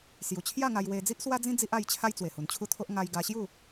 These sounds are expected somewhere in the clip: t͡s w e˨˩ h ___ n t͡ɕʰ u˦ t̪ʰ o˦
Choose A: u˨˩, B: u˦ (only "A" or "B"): A